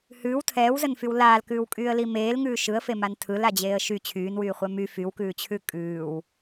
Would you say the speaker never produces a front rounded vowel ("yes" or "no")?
no